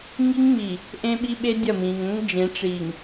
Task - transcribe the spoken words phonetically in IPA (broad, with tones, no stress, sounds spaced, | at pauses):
ŋ i˦ ŋ ŋ͡m i˨ | ʔ ẽ˦ ɓ i˦ ɓ e˦ dʲ ɐ˦˨ m ĩ˨ ŋ ə̃˦ ŋ d͡ʒ ẽ˨˦ ʈ͡ʂ i˨ ŋ